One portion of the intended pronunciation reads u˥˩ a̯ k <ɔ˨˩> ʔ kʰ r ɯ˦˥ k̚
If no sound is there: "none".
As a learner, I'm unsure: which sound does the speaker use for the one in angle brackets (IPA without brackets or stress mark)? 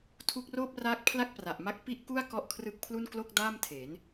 ɔ˥˩